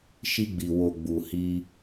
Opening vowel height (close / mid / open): close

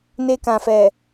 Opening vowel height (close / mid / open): mid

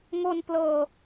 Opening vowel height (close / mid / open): mid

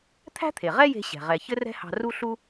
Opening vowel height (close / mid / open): open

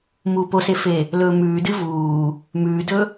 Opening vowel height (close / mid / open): close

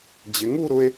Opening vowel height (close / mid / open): close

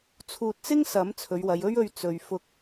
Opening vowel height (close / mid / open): close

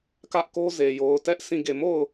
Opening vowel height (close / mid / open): open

